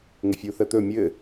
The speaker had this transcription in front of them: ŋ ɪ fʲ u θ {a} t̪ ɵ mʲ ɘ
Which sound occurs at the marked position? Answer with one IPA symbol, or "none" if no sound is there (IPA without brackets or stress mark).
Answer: ə